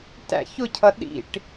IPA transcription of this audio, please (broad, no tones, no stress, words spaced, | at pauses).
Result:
tæ̰ç ʊcʰʌ ɗḭʈ